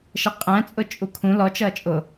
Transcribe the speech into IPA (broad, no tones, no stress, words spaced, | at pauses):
ʃəqʼæ̃ t͡sʼʊt͡ʃʼukʰũ lɔ t͡ʃʌːt͡ʃʼʊ